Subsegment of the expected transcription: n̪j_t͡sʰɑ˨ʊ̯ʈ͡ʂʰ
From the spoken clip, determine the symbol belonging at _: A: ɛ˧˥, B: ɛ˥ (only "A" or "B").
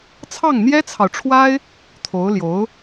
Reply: B